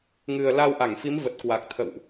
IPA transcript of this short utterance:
ŋɨ˨˩ə̯la˧wʔa˧˩ŋfi˨˦m və˨˩t̚kwa˨˩k̚t̪ʰə̰˧˨wʔ

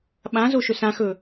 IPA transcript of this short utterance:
ɓãzo ʃɵsãxɵ

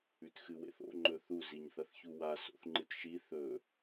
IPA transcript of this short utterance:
ʉtxɨwḛθo̰ ŋ͡ǃɵθu ziɲθɐθçuwa so̰θŋ͡ǃɨtʃi θɵ

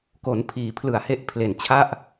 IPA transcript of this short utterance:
ko˩˦npʰiː˩˦ pʰlɯ˨˩a̯he˦˥ʔ pʰle˨˩nt͡ɕʰa˥˩ʔ

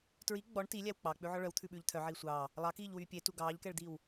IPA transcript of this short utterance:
tɹi ɡ͡bɔɳ tilʲæw k͡pɑk͡pʉʕɔ ɭœwt̪ʰʉɓʉːʎ t̪ʰœʕiː sʷɑː | lˠɑkiːʎwyː pʲetu ɡɑːʎkɛɭd̪iːw

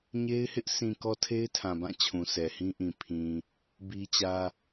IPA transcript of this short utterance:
ɲe˦ɪ̯hɪ˦ʔ sʰĩ˨ kɔ˦tʰe˦ɪ̯tʰã˨bã˦˨ t͡ɕʰũ˨sɛ˨hĩ˦ʔĩ˨ pʰĩ˨ | bi˦t͡ɕä˦

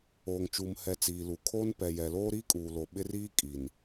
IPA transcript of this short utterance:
oː˨ŋt͡ʃuː˨mhɛ˨ t͡siː˨lu˨kʰoː˦n pɛ˨ jɛ˨loː˦ɾiː˦kʼuː˨ lo˨ ɓɪ˦riː˦ kʼi˨n

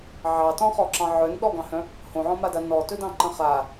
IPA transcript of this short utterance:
ʕɑtɔ̃χɔǁɑ̃ ʕœnɗɔɡɑ̃hœ̃ | hõʕɔ̃mada nɔtɵdɑ̃ǃə̃ χa

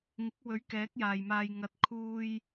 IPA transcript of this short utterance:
ŋɪ˨˥k̚wɵ˨˥ɥ kɛː˨˥k̚jaː˨jmaː˧j ŋɐ˧t̚ kʰuː˧j

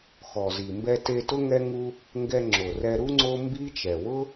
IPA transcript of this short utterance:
xɔ˨zi˨ mbɛ˧te˧tʊ˦ ŋɛ˦ŋu˦ | ŋɡɛ˧ŋ͡ǁo˨rɛ˧ɾu˦ ŋ͡ǀo˦mbi˦t͡ʃɛ˨ wʊ˦

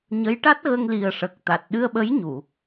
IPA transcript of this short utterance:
ɲə˧˥j ʈa˦˥t̚ɣə˧ŋli˨˩ə̯ ʂə˨˩k̚t̪a˨˩t̚ ɗɨ˧ə̯ɓə˧˥jɲu˨˩˨

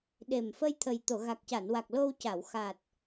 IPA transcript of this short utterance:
ɗe˨˩m fə˧jt̪ʰə˨˩j t̪o˨˩˨ɣa˨˩k̚ca˨˩˨nwa˨˩k̚ lo˧w ca˨˩˨wxa˨˩t̚

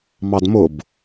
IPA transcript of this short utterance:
mɑdmʊb

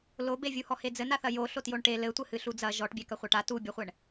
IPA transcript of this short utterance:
lobevʲuhɔ hed͡zɘnaθɐ jo ɬotjoɳʈe lɘtʷɘ hɨɬud͡zɐ ʒɔʈbʲɛ kɐχʷaʈa tubʲɔχʷɛɳ

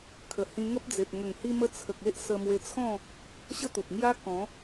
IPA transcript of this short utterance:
kʰə˨˩hĩ˧ŋə˦p̚d͡ze˨p̚ ŋə˨˩ŋhi˧mə˧t͡sʰə˨k̚ e˦ʔsə˧mwe˧t͡sʰɔ̃˥˧ | ɕə˦t̪u˨p̚ŋja˦ kɔ̃˨˦

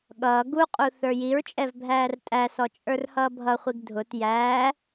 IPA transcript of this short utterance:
ɠʌː ɡuqʼu θə˞jiɹt͡ʃʼɛv bʱæːrtʼæsɔ t͡ʃʼə˞rhʌːbʱʌχʷiɡ dʱʊt jæː

